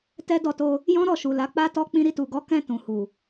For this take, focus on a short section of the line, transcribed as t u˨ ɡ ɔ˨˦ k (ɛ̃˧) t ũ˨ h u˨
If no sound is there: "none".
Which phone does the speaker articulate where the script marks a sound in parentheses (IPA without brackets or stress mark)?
ɛ̃˧